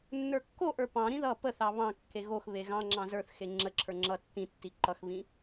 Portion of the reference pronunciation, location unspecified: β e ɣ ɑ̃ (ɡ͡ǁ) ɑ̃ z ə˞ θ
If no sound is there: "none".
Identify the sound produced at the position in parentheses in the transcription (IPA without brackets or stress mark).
ŋ͡ǁ